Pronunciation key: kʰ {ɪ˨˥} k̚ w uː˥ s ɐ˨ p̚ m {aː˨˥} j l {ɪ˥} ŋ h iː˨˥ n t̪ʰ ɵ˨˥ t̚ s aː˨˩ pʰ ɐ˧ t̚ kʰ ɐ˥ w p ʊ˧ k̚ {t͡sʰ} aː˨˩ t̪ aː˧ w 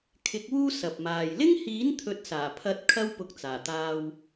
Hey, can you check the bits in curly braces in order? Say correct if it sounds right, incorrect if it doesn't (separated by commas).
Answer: correct, incorrect, correct, incorrect